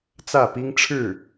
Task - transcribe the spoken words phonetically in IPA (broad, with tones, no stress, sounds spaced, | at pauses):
t͡s ä˥˩ p i˥ ŋ ʈ͡ʂʰ ɻ̩˥˩